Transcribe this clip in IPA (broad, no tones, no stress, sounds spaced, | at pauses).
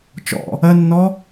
t͡ʃ ɔ̰ | ɜ nː ɔ